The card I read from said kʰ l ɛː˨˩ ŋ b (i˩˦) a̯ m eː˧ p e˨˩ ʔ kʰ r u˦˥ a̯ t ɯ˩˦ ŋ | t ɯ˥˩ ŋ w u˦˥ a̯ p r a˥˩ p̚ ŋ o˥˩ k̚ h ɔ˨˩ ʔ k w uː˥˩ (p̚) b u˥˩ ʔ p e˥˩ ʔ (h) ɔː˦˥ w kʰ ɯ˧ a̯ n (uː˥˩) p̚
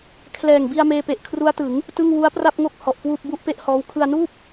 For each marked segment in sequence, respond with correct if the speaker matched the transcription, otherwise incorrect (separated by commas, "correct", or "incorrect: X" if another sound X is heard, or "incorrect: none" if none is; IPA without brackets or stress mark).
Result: incorrect: i˧, correct, correct, correct